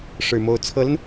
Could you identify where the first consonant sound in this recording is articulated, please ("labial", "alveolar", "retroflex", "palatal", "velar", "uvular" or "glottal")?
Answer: retroflex